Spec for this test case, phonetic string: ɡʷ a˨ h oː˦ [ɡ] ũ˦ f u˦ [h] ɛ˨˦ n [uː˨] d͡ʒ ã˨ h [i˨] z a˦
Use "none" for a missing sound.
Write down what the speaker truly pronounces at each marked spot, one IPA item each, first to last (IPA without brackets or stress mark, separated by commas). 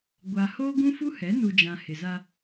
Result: ɡ, h, u˨, ɪ˨